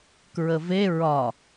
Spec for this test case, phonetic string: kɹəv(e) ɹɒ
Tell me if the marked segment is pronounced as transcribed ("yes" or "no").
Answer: yes